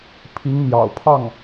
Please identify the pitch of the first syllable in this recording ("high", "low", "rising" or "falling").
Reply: rising